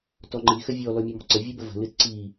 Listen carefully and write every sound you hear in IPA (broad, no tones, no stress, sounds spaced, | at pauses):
t ɔ ŋ͡ǃ i x ə vʲ ɔ l ɔ mʲ ɔ m ɔ̤ ǀ ə vʲ ɨ b ə v ə̤ l ɨ t ǀ i